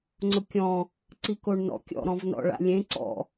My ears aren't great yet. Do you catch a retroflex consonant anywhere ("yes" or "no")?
yes